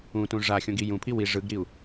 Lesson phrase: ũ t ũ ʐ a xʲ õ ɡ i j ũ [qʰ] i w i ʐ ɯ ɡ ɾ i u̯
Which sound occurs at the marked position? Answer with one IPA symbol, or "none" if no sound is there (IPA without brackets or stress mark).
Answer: pʰ